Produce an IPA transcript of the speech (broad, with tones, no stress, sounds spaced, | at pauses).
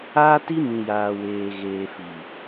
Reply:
aː˦ t i˦ m ĩ˨ j aː˨ w eː˨ ɣ eː˨ f i˨